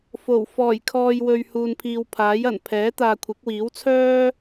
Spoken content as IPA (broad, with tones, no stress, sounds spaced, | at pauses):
f o˨˩ w f ɔː˨˩ j kʰ ɔː˨ j w ɵ˨ ɥ h uː˨ n pʰ iː˨ w pʰ aː˨˥ j ɐ˨˩ n pʰ ɛː˨˥ t̪ aː˨ kʷʰ ɪ˨˥ k̚ w iː˨˥ w t͡sʰ œː˥